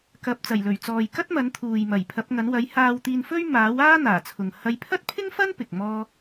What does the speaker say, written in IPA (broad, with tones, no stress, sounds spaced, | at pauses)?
k ɐ˨ p̚ t͡s ɐ˨˩ j l ɵ˨˩ ɥ t͡s ɔː˨ j k ɐ˥ t̚ m ɐ˨˥ n t̪ʰ uː˨ j m ɐ˨˩ j pʰ ɐ˨˥ p̚ ŋ ɐ˨˥ n w ɐ˨˥ j h aː˧ w t̪ iː˧ n f ɵ˥ ɥ m aː˨˥ w aː˥ n̪ aː˨˩ t͡sʰ ʊ˨ ŋ h ɐ˨˧ j pʰ ɐ˥ t̚ pʰ ɪ˥ ŋ f ɐ˥ n p ɪ˨ k̚ m ɔː˥